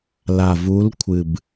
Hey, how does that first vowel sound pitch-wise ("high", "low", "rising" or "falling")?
low